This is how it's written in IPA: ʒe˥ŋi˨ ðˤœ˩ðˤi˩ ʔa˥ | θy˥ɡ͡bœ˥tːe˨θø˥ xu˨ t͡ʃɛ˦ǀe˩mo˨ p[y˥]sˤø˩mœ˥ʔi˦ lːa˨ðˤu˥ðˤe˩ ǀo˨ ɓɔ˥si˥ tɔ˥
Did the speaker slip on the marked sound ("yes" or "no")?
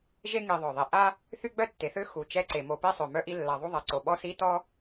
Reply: yes